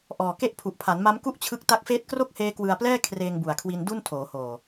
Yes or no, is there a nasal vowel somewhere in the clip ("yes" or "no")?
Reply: no